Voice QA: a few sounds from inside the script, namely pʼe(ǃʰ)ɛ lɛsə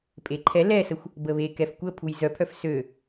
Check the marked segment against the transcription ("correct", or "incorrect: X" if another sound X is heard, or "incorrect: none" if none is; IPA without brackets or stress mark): correct